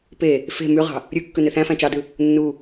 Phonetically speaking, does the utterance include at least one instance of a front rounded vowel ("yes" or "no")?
yes